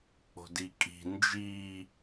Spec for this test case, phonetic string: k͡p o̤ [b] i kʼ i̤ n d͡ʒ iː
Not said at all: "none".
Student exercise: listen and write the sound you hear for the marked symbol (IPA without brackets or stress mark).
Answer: d